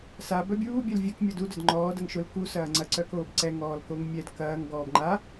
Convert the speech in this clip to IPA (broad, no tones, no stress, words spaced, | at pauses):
sa bœbʲuː bʲœlvʲœk mʲɔdu dœdŋ͡ǃɔː dɐŋʃʊl ku sɐːŋ͡ǀɐ ǀœkoːbǀɛ ŋɔːlkoŋmʲɛd kɐːŋ ɡɔːbŋ͡ǃa